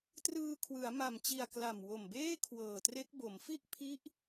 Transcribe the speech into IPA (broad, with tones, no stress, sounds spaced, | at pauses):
t r ɯː˧ kʰ w ɯ˩˦ a̯ m a˨˩ m t͡ɕ i˨˩ a̯ k l a˨˩ m w o˨˩ m b eː˥˩ kʰ w ɤː˨˩ t r e˦˥ k̚ b o˩˦ m f i˥˩ ʔ pʰ i˦˥ ʔ